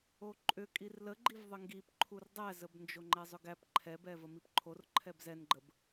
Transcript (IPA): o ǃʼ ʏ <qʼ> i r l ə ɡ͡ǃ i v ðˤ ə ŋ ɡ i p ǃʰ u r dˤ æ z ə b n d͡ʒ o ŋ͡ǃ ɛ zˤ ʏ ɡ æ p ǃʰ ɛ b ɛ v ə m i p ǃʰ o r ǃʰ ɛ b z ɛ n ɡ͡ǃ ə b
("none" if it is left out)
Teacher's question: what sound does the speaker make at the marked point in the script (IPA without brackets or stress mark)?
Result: kʼ